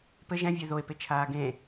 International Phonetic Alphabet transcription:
p ɘ ʒ ɛ̃ vʲ ɛ ð o e̯ p e t͡ʃʰ aː ɡ ẽ

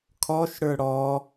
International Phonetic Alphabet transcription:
kʰ ɔ ʃ ɽ ə˞ ɽ ɔ

